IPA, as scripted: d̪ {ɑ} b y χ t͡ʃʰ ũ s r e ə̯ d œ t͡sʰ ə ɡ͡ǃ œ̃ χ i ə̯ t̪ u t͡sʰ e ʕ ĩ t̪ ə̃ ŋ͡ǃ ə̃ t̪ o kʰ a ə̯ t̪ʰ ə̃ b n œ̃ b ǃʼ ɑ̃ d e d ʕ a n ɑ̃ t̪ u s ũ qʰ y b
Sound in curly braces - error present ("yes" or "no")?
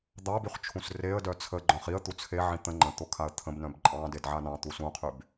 no